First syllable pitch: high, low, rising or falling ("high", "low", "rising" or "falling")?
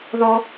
high